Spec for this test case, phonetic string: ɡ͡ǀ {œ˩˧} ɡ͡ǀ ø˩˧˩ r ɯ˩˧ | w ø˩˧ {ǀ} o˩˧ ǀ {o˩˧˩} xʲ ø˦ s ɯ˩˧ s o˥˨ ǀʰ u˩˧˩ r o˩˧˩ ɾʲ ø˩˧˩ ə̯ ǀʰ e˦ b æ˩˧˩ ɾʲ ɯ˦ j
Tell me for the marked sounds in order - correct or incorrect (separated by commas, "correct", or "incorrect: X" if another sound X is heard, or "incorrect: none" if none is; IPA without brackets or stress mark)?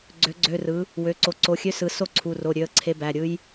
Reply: incorrect: ø˩˧, correct, correct